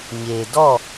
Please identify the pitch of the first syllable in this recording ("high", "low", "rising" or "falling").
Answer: low